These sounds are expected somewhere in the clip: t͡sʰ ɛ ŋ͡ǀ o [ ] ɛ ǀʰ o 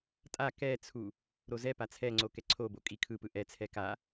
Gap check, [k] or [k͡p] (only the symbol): k